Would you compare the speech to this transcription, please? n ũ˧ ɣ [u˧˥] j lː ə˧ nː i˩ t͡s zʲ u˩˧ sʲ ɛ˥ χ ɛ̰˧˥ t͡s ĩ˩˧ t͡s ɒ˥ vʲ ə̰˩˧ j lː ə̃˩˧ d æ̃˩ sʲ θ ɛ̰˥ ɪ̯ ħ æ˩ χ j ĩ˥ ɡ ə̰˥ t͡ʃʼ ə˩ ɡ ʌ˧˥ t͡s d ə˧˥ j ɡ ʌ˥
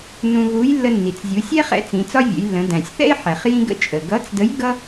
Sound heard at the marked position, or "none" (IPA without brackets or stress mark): u˧˥